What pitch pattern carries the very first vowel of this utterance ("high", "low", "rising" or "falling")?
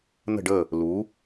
falling